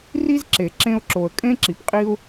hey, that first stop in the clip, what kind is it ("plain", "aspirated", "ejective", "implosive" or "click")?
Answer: click